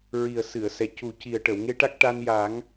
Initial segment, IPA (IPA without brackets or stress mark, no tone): ɹ